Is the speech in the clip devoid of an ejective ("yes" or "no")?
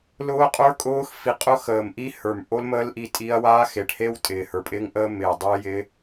no